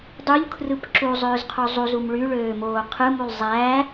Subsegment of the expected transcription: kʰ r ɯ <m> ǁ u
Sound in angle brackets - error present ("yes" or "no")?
yes